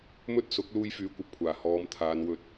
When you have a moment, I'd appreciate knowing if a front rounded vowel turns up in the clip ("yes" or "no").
yes